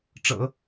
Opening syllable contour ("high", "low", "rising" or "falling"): low